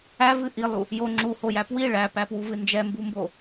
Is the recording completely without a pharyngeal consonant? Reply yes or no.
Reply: yes